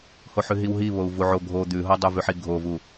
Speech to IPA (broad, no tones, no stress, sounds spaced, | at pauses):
h o ħ ʉ ɦ i w ɦ i β o u̯ v u ʕ o ɡʱ o d̪ ʉ ɦ o dˤ ʉ v ʉ ħ i ɡʱ o v u